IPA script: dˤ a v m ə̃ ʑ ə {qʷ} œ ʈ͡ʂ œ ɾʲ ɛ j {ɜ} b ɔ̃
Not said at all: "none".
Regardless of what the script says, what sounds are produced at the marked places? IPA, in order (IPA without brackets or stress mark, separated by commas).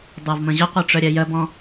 qʷ, ɜ